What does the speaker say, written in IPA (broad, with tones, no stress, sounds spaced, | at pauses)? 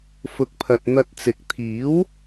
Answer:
f ʊ˨ k̚ pʰ ɐ˨ t̚ n̪ ɐ˧ t̚ t͡s ɪ˨ k̚ t̪ʰ iː˨˥ w